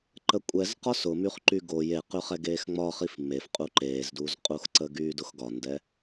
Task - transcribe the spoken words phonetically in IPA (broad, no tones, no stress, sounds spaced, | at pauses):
ǃ ə kʷʼ ɛ z q ɒ s ʊ m y χ ǃ y ɡ o j e q ʉ χ ɛ ɡ eː x ŋ͡m ɒ χ i f m e f qʼ u ǃ eː z d u z qʼ u x ǀ ə ɡ yː d ʊ x ɡ ɒ n d ɛ